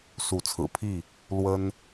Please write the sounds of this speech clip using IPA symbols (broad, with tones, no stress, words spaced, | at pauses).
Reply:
su˨˦t͡sʰɹ̩˨˩pʰi˥˨ | lwə˦n